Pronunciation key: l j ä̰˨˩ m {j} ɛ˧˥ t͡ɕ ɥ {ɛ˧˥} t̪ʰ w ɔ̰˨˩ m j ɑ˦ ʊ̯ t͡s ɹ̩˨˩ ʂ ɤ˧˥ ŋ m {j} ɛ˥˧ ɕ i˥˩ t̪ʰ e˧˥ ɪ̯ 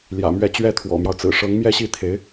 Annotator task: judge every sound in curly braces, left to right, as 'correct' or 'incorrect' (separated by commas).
incorrect, incorrect, correct